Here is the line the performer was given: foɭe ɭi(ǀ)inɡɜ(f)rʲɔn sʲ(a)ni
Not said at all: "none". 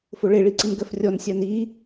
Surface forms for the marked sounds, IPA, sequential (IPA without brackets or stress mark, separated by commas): ǀ, f, a